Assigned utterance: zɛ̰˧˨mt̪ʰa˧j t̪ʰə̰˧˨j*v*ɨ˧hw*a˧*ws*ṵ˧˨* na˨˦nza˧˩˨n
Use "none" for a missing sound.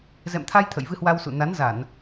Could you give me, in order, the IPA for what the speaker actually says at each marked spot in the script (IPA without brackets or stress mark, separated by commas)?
v, a˧, ṵ˧˨